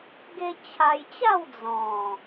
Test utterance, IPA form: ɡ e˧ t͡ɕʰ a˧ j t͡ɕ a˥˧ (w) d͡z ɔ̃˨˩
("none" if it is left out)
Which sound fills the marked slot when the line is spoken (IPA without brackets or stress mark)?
w